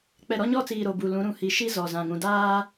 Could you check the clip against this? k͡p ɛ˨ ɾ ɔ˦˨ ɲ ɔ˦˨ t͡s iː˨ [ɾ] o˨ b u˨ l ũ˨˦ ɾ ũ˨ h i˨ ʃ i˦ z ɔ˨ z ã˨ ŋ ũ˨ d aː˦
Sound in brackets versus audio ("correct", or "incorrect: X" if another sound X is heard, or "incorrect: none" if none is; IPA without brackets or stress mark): correct